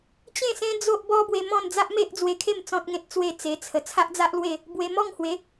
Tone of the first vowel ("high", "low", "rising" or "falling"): falling